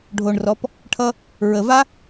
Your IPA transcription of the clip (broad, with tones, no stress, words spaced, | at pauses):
ɖʱo˨ɳrɔ˨˦p | ʈʰʌ˦ | ɹə˨ va˦